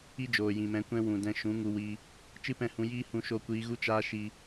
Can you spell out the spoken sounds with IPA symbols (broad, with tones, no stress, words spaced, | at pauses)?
i˦ d͡ʒoː˨jĩ˨mɛ̃˨˦kʷɛ̃˦ wũ˨dɛ̃˧ ʃũ˨˦ŋu˧wi˧ | t͡ʃɨ˦pɛ̃˦˨hũ˧ jiː˦ hũ˧ʃo˧kʷiː˧ ɣu˦t͡ʃaː˦ ʃi˧